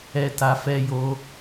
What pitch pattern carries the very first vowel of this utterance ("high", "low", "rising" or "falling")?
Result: low